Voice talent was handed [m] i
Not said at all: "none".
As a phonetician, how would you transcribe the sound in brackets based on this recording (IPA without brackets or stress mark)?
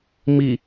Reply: m